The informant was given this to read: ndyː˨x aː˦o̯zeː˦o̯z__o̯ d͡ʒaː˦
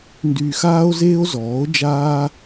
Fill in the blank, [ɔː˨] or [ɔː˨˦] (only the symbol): ɔː˨˦